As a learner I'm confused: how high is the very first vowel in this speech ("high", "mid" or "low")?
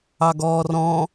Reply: low